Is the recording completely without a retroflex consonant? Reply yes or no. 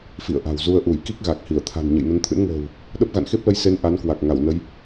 yes